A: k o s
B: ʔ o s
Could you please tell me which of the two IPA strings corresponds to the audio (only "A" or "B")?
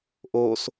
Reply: B